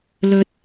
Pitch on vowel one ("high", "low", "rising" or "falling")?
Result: low